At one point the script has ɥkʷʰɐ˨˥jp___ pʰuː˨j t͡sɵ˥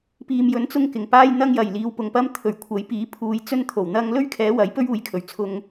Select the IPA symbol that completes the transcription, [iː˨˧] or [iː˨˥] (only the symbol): iː˨˥